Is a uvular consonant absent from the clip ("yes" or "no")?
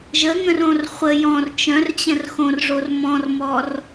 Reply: no